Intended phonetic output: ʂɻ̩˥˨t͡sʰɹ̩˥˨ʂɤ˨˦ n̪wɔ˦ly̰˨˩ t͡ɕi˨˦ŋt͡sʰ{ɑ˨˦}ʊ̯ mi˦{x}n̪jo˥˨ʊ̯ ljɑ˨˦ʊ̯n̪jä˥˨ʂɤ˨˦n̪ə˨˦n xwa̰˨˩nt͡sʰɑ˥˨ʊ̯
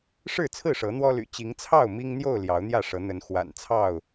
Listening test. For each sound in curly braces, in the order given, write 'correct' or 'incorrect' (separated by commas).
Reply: incorrect, incorrect